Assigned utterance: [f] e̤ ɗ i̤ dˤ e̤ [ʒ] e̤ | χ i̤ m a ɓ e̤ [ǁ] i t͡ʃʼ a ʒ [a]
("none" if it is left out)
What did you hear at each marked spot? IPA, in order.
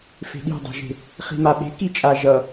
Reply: f, ʒ, k, ʌ

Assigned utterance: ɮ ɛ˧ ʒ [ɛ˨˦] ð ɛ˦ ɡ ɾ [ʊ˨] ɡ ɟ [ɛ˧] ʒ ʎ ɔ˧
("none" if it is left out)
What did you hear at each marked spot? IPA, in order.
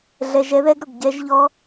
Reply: ɛ˦, ʊ˨, ɛ˧

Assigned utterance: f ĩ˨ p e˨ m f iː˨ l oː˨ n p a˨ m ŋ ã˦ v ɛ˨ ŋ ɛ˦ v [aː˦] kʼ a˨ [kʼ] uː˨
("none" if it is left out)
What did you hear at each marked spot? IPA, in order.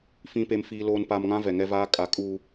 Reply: aː˦, kʼ

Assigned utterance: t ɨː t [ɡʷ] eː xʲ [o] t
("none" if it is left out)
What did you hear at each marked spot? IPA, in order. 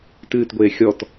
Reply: ɡʷ, ɔ

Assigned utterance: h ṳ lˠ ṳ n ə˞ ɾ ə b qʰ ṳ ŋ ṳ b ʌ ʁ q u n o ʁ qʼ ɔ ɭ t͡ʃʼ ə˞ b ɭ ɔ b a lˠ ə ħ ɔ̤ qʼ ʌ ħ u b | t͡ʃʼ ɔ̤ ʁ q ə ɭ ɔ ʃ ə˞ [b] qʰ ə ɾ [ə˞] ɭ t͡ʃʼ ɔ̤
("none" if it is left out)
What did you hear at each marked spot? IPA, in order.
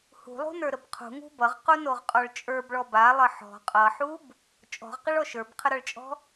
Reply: b, ʌ

